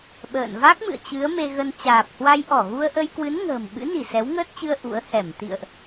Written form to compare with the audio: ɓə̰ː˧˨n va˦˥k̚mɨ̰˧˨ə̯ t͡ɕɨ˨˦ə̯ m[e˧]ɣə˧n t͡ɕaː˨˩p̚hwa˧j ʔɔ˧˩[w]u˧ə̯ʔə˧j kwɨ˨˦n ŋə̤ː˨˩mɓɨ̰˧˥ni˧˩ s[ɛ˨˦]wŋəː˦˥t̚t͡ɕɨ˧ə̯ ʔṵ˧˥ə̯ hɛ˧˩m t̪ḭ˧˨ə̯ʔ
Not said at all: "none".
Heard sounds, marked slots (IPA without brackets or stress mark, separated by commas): e˧, ɣ, ɛ˨˦